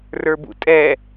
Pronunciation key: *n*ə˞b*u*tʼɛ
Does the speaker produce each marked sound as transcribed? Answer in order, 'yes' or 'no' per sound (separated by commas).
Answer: no, no